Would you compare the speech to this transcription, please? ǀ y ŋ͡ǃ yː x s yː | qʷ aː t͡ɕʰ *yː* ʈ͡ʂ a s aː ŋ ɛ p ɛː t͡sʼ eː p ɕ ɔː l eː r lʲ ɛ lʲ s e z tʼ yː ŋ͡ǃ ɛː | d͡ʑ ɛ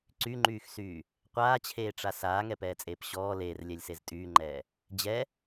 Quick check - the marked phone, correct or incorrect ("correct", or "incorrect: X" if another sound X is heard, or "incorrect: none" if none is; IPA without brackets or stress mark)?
incorrect: eː